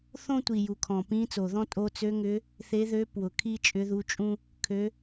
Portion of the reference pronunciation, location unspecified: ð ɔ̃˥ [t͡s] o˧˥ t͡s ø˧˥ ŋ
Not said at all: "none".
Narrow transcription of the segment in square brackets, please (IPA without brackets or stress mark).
tʼ